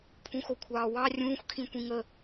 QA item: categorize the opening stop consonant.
aspirated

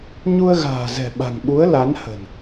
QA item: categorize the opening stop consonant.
implosive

